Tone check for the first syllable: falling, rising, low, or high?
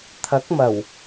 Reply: rising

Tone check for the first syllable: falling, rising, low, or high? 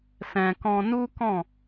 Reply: low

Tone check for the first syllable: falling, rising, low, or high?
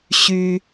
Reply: high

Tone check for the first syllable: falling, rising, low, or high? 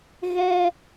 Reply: high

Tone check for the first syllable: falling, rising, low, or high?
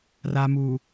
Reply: low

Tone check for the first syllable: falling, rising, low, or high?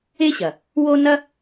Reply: high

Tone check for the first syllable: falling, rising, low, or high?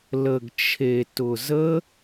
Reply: low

